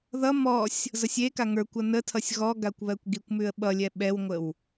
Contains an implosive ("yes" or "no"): yes